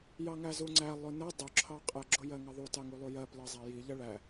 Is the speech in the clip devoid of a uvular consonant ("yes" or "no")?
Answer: no